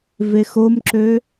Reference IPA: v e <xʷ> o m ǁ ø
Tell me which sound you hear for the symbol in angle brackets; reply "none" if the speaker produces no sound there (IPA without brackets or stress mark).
x